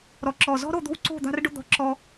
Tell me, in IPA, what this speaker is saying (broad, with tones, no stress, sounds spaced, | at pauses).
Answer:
ɾ ɔ˥ ǁ ɔ˥˧ z ɔ̤˥ ɾ o˥˧ d̪ o̤˥ w ǀ o̤˥˧ d̪ a̤˥ r ɖ ʊ˥ d̪ ɔ̤˥ ǁ ɔ˥